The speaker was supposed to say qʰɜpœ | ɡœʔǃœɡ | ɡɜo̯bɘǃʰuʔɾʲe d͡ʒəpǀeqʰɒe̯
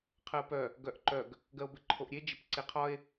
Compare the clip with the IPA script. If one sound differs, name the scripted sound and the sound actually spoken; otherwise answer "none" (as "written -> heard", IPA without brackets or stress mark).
u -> o